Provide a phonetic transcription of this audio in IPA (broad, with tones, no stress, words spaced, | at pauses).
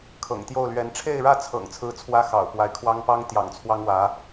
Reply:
kʰɤ̰˨˩ŋt̪jo˥˩ʊ̯lɥɛ˧˥n ʈ͡ʂʰe˥˧ɪ̯ɻä˥˩t͡sʰɤ̰˨˩ŋ t͡sʰɹ̩˥t͡sʰwä˥ xɑ̰˨˩ʊ̯pwa˧˥ɪ̯kʰwɑ˥ŋ pɑ˥ŋt̪jɑ̰˨˩ŋ t͡sʰwɑ˥ŋwä˧˥